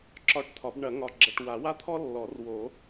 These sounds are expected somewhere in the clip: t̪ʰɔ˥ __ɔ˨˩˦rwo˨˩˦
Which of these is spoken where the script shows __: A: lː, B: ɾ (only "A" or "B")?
A